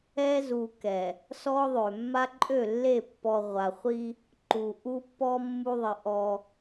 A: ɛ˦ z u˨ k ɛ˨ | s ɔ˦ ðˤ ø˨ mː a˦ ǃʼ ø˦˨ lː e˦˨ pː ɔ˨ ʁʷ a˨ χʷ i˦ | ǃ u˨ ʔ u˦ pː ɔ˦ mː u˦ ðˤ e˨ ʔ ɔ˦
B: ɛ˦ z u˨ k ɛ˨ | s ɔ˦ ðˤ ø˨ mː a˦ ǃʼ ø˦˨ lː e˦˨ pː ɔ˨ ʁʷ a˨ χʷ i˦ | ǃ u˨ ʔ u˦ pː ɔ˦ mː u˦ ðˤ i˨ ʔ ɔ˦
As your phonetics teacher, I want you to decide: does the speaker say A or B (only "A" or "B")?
B